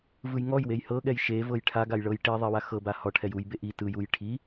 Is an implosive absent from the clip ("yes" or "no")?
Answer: no